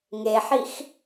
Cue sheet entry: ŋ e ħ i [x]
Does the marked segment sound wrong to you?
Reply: no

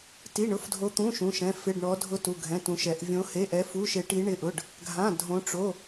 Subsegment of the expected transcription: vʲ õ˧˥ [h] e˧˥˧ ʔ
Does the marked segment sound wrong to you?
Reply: no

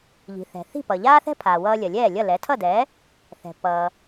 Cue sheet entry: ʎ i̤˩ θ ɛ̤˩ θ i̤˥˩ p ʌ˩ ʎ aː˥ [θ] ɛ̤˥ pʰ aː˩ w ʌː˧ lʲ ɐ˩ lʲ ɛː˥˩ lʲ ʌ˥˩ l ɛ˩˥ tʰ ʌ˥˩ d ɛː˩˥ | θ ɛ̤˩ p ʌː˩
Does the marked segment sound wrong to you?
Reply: no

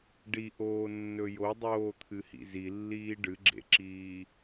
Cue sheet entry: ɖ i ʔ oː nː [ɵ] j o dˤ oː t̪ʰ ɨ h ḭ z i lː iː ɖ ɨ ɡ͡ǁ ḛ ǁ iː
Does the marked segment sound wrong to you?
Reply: no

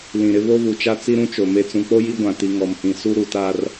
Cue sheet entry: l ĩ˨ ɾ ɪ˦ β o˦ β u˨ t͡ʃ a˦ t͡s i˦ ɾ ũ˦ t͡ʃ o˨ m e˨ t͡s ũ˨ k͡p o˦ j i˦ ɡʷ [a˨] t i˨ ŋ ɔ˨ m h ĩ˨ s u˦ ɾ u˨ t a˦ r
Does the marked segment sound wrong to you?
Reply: yes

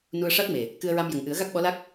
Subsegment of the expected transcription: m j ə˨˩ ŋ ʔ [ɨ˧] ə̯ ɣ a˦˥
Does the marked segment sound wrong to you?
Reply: yes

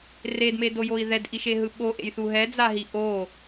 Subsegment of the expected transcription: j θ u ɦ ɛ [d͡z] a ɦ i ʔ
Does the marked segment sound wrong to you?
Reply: no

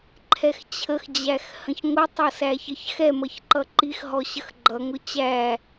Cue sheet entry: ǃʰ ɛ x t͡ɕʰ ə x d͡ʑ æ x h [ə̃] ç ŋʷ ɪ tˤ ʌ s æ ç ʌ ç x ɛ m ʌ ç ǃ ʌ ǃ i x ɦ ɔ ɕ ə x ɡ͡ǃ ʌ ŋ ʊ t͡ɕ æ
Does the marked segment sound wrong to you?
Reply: no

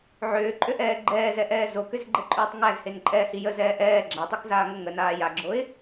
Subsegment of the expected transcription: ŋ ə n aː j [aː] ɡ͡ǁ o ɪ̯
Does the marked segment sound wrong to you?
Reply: yes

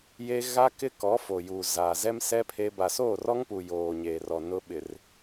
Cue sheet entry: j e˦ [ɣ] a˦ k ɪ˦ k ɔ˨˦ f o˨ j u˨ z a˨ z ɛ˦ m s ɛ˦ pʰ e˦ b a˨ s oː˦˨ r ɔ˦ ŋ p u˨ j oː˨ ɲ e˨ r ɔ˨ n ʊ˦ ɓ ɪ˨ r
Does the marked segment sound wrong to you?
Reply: no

